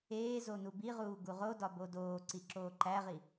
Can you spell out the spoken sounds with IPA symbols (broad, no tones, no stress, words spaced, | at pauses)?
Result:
eːzo nubiʁuː ɡuʁodɒ bodoːǀi ǁoːǃæʁi